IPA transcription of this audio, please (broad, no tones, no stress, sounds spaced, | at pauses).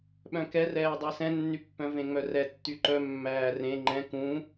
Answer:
ɓ œ̃ k ɛ r ɛː dˤ æ s ɛ̃ nː y pː œ̃ v ẽ ŋ͡m œ r ɛ tː y ǃ œ mː æː r ẽ ŋ͡ǃ ɛ̃ k ũ